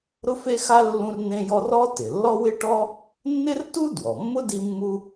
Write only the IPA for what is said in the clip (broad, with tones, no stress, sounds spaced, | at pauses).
ɾ ʊ˥ f e˥ x a˥ lː ũ˥ r n ẽ˥ j ɔ˥ r ɔ˥ t ɪ˩ lː ɔ˥ w ɪ˥ ʈ ɔ˥ | nː ɪ˥ r t u˥ d w ɔ˩ mː ʊ˥ d i˥ mː u˥